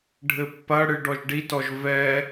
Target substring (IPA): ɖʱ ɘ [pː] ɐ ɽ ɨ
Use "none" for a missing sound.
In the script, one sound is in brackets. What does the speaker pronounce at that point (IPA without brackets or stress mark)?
pː